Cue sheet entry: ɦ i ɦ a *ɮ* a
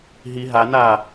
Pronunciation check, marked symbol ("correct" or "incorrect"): incorrect